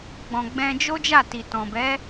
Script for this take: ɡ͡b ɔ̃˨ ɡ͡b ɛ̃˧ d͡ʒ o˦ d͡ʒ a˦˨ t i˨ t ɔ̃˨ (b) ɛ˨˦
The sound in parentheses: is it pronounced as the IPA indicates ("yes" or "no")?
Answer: yes